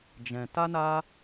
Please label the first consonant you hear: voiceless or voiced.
voiced